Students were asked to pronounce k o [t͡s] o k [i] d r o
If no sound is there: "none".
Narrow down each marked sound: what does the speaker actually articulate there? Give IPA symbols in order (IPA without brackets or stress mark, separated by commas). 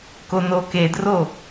n, e